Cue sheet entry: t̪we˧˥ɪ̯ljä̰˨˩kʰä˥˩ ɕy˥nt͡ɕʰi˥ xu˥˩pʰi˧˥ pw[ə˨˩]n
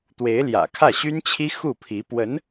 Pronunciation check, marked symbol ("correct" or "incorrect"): incorrect